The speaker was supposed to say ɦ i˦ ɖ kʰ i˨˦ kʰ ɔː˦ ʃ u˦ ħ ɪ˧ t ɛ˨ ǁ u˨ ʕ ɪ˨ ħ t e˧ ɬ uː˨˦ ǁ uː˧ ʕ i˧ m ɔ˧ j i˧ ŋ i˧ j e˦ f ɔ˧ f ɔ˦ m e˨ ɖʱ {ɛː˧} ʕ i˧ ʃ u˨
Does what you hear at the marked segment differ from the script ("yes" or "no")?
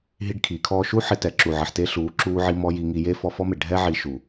yes